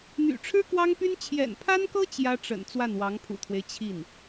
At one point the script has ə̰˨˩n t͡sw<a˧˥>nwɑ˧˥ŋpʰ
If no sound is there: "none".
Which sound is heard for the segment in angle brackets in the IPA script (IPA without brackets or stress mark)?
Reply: a˥˩